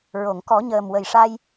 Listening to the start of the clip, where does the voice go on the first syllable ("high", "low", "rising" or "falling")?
low